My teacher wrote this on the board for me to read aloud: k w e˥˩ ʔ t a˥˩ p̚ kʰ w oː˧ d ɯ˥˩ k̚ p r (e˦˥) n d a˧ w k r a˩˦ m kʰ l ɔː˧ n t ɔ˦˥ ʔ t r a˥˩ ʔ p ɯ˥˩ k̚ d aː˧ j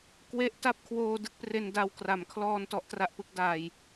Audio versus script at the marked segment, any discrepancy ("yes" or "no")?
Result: yes